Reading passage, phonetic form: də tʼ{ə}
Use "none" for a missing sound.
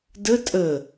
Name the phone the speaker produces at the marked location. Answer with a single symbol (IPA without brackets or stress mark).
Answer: ə